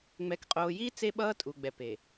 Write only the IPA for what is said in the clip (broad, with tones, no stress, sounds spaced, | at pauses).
ŋ͡m ɛ˨ k qʼ oː˨ j iː˦ t͡s e˦ ɓ ʌː˦ tʼ u˨ ɡ͡b ɛ˨ p e˨